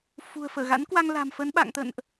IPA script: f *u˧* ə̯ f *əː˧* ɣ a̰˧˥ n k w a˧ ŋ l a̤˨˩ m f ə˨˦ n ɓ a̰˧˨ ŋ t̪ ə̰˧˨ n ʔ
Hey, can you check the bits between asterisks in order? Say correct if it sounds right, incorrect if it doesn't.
incorrect: ṳ˨˩, incorrect: əː˧˩

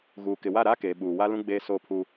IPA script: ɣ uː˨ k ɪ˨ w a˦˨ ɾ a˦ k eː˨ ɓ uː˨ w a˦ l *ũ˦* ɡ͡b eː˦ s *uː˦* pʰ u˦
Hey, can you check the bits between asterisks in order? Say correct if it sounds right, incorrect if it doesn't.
correct, incorrect: oː˦

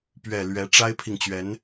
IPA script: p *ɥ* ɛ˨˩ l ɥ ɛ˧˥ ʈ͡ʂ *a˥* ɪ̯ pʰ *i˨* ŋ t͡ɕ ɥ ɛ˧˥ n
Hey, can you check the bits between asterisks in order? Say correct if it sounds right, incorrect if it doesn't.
correct, correct, correct

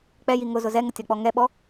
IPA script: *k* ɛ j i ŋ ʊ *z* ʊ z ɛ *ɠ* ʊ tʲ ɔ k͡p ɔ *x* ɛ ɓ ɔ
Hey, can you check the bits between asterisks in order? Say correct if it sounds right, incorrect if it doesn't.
incorrect: k͡p, correct, incorrect: ŋ, incorrect: ŋ

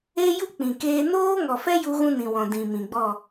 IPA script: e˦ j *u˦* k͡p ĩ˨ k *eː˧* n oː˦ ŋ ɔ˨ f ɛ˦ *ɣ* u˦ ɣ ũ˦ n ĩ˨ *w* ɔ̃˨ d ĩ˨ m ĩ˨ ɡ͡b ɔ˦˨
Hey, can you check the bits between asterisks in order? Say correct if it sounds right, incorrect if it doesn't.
correct, correct, incorrect: j, correct

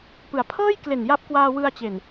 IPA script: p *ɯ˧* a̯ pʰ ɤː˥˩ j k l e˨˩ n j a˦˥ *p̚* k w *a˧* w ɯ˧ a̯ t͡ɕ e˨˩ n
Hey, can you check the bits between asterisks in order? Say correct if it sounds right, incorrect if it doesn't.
incorrect: ɯ˩˦, correct, incorrect: aː˧

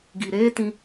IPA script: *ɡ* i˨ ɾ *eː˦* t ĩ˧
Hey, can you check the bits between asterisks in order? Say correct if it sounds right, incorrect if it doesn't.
correct, correct

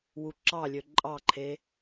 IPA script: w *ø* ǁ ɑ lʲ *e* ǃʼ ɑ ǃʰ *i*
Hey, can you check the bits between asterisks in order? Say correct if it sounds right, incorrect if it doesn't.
incorrect: u, incorrect: ø, incorrect: e

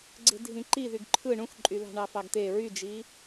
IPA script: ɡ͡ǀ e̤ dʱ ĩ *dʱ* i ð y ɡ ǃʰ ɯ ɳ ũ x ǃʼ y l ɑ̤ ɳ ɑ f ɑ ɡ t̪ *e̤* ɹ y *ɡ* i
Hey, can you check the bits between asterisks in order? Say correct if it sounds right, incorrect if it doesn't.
incorrect: ǃ, incorrect: e, incorrect: d͡ʒ

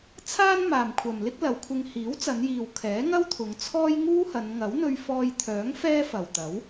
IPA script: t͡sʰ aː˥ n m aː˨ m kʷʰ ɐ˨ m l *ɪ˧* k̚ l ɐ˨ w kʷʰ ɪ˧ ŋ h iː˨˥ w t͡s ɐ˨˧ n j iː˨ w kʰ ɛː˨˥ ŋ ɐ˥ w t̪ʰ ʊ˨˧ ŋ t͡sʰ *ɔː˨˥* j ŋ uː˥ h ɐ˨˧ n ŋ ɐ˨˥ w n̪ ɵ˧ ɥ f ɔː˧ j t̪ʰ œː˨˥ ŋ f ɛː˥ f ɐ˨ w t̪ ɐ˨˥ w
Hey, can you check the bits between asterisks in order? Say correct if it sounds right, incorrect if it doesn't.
incorrect: ɪ˥, incorrect: ɔː˥

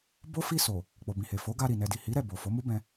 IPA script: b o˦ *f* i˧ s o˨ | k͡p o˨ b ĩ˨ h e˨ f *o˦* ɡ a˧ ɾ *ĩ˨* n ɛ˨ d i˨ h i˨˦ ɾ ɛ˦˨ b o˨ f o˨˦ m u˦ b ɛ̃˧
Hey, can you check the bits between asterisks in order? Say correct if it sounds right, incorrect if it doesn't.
correct, incorrect: o˨˦, incorrect: i˨

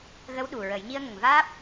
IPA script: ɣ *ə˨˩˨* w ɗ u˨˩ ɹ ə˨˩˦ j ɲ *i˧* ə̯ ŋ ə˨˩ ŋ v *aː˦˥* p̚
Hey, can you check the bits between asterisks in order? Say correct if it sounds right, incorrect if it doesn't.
incorrect: ə˧˥, correct, correct

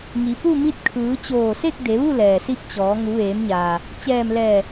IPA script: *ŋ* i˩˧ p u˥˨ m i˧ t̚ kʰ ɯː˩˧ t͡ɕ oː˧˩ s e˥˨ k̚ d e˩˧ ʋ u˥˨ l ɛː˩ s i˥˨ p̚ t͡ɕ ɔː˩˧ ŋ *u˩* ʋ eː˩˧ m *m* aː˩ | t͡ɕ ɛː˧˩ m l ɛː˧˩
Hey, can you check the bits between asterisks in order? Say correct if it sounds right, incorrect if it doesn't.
correct, incorrect: u˩˧, incorrect: ɲ

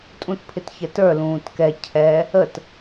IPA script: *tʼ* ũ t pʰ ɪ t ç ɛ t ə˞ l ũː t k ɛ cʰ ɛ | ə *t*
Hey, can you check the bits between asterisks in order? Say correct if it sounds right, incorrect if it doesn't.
correct, correct

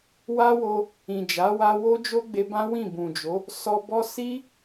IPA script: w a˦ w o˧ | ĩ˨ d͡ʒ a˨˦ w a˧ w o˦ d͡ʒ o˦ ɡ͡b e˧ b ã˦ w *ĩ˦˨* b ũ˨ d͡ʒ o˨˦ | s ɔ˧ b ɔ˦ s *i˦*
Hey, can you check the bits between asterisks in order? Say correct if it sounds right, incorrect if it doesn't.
correct, correct

